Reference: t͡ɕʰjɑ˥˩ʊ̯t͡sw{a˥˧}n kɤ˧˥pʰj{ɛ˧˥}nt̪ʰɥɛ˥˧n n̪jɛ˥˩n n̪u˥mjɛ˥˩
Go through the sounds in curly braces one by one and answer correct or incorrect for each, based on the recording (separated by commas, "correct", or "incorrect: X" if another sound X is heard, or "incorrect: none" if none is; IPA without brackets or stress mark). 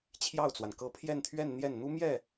incorrect: a˩, incorrect: ɛ˥˧